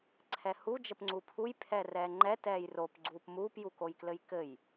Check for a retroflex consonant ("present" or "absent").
absent